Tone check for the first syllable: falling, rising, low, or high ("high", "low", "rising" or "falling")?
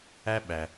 high